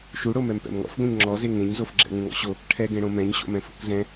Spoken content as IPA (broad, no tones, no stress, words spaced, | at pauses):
ʃuɽo mɛmpɛ̰mŋɔ̰fɡõɲ ŋ͡ǁɔze ŋẽɲzof ɡ͡ǁɛ̰ŋũŋɔ̰ɕo | ʈʰɛɡẽɽõ mɛ̃ɲɕo̰mɛ̃fo̰k zɛ̃